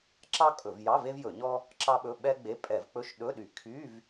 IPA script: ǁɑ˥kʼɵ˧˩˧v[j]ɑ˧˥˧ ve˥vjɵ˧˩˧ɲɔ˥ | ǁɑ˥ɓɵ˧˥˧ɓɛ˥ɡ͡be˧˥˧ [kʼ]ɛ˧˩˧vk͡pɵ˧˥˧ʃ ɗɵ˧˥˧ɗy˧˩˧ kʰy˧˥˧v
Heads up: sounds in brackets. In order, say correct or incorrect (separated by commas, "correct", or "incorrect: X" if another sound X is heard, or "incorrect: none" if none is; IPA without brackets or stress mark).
correct, incorrect: pʼ